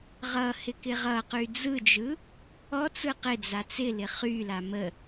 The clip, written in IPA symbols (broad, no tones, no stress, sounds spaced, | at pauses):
ʁ ʌ h ɪ k ɪ ʁ ʌ q y d͡z ɯ d͡ʒ ɯ | ɔ t͡s ɯ q ɪ d͡z a t͡s ɪ l ɪ χ y l a m ə